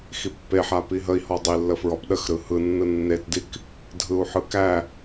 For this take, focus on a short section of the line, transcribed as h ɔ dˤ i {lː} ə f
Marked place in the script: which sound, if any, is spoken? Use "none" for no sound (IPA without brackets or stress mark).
lː